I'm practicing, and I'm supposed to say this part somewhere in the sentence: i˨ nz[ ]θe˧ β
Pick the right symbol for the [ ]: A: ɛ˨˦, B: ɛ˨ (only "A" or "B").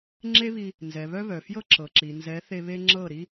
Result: A